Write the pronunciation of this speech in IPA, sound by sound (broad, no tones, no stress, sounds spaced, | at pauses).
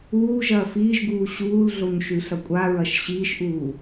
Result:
uː ʒ ɐː f iː ʒ ɡ uː ɕ uː l ɮ o ɲ ʃ ʉ ɬ ɐ kʷʼ a ɹ ɐ ʃ ɕ iː ʃ ʔ uː